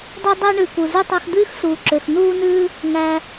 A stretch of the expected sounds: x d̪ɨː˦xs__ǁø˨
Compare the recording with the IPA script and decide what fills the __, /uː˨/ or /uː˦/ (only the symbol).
uː˨